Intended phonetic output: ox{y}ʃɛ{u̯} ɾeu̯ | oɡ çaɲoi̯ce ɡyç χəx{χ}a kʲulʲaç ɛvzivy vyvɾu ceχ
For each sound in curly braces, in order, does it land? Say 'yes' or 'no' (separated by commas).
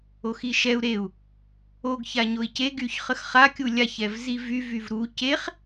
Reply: no, yes, yes